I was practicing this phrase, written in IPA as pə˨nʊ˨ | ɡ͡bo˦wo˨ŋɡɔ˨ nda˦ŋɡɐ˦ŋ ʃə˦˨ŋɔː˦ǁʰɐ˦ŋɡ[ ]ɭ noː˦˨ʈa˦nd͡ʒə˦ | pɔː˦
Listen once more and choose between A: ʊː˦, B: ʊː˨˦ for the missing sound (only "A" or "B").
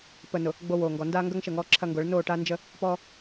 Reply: B